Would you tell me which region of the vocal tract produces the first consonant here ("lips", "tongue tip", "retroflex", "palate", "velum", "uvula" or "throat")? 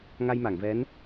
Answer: velum